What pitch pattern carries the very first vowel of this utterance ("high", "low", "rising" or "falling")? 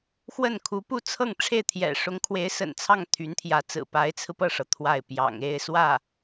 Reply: falling